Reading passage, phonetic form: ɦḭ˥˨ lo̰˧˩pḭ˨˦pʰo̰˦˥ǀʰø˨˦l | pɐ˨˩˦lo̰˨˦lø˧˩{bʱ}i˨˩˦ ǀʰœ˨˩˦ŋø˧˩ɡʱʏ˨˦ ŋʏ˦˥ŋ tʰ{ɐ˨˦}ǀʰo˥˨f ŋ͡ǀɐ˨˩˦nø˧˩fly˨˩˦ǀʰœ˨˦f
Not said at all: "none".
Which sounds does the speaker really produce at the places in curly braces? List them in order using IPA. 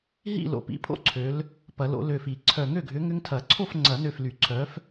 f, ɐ˨˩˦

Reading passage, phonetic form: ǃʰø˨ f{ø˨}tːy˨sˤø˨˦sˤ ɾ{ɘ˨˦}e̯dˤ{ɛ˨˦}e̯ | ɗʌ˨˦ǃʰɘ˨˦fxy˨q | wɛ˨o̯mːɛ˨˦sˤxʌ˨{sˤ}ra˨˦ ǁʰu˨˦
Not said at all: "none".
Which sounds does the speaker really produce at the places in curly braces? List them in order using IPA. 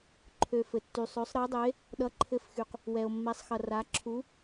ɘ˨, ɘ˨˦, ɘ˨˦, none

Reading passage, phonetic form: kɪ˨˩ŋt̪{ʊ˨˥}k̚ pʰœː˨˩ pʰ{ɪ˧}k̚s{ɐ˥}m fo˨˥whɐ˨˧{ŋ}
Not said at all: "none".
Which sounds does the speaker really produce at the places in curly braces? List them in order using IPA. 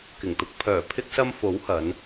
ʊ˧, ɪ˧, ɐ˧, n

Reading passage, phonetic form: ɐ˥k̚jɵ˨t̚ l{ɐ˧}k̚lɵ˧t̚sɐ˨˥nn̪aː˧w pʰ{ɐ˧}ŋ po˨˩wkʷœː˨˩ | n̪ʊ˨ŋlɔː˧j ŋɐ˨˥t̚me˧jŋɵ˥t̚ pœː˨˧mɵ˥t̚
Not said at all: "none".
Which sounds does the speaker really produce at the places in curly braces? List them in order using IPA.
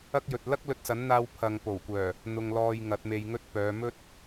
ɐ˥, ɐ˨

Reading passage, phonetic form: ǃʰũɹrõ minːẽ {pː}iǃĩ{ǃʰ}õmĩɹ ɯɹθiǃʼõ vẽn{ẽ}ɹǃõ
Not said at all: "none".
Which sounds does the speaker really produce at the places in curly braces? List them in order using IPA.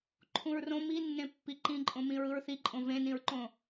pː, ǃʼ, ĩ

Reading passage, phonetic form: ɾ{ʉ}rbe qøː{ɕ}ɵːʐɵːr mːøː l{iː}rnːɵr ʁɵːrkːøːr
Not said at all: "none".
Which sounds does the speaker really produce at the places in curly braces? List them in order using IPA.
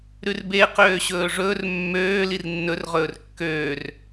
ʉ, ɕ, i

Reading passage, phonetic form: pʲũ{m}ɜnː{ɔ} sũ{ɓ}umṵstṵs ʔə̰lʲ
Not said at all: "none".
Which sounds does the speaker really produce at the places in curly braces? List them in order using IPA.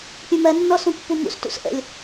m, ɔ, pː

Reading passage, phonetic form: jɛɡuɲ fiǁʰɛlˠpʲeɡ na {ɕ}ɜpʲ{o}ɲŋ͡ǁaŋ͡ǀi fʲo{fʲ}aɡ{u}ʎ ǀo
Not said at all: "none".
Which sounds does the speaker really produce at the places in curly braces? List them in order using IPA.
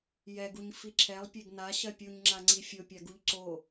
ɕ, u, pʲ, u

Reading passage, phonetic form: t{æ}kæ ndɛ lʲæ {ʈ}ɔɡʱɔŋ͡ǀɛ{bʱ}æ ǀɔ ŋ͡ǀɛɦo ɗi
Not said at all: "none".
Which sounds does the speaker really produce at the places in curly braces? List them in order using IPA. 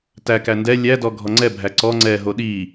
æ, d, bʱ

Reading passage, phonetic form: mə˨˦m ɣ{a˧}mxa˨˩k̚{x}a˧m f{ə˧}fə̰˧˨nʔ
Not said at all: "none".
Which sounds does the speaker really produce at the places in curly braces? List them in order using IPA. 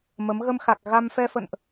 ə˧, ɣ, ɛ˧

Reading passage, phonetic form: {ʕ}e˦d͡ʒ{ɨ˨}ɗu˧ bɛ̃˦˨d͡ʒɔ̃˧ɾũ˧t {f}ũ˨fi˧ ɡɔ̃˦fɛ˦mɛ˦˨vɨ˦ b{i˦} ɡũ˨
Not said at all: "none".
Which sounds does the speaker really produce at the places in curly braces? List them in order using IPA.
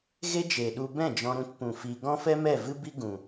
ɣ, e˨, p, i˦

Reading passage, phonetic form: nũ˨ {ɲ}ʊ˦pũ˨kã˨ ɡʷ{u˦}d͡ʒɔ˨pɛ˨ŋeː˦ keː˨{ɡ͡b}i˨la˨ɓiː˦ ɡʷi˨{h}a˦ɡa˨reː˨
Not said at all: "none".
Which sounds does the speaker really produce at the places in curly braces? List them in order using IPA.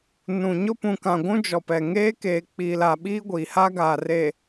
ɲ, ũ˦, k͡p, h

